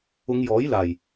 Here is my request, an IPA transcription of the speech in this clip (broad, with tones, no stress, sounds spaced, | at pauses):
ʊ˨˧ ŋ j ɔː˨˥ j l aː˨˩ j